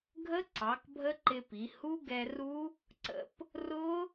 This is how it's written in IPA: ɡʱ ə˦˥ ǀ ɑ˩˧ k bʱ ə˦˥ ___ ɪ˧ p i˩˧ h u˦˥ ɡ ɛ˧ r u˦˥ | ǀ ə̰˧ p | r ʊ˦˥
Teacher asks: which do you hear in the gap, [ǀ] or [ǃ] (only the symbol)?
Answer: ǃ